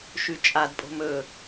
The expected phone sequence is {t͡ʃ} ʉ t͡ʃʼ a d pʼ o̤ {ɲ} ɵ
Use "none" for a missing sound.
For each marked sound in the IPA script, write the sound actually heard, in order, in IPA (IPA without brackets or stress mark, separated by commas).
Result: ʃ, m